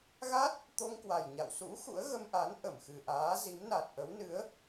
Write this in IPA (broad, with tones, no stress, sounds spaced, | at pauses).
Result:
ɣ a˦˥ t̚ | t̪ o˧ ŋ k w a˨˩ j ɲ a̰˧˨ w s ṵ˧˥ x ṵ˧˥ ə̯ ɣ ə˧ m ʔ a˨˦ n ʔ ə˧˩ m x ɨ˨˩ ʔ aː˨˦ z i˨˦ m n a˨˩ t̚ ʔ ə˨˦ w n ɨ˨˦ ə̯